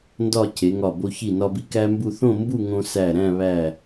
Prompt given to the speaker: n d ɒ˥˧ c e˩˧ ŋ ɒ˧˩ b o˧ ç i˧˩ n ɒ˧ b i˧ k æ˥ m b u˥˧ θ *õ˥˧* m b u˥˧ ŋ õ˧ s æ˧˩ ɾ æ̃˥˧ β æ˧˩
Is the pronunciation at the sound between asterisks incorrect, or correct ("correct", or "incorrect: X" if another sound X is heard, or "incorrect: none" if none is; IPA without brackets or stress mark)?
correct